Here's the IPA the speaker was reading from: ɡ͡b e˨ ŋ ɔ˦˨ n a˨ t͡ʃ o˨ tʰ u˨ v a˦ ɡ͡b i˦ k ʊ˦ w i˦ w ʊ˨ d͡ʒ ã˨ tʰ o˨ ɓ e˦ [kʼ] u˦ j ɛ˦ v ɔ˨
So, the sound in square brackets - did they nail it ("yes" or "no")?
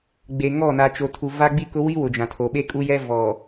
yes